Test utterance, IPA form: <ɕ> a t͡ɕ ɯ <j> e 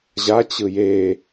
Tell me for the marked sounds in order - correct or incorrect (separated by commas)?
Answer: incorrect, correct